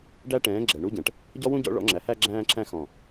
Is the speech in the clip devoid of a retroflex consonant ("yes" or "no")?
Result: no